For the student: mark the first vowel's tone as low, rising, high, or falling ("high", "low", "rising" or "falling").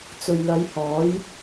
low